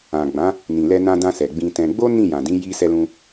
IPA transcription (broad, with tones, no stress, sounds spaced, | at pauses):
ã˨ ɡ͡b ã˨˦ | n ĩ˨ l ɛ˧ n ã˧ d ã˧ s ɛ˨ ɡ͡b ĩ˧ t ɛ̃˧ ɡ͡b o˦ n ĩ˦˨ j ã˨ d ĩ˨˦ j i˦ s ɛ˧ l ũ˧